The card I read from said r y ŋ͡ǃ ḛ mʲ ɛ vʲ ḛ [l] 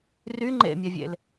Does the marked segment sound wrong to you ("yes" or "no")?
no